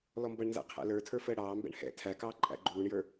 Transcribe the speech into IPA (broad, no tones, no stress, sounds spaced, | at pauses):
l ɔ m b ʌ ɳ n z æ̰ qʰ æ̰ l ə˞ tʰ ə˞ f əː ɽ ɑː m b ɛ̰ ɳ h ɛ̰ tʰ æ k ɑː ǃʼ æ̰ ɡ͡ǃ uː ɳ j ə˞